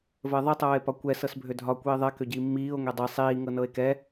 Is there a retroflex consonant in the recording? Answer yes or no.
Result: no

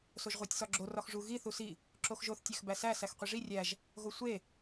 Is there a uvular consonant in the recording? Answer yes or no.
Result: yes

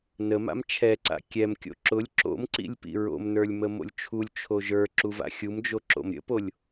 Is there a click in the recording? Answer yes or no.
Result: yes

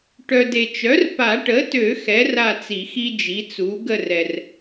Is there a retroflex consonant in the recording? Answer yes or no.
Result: yes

